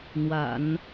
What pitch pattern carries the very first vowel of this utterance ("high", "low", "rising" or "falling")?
low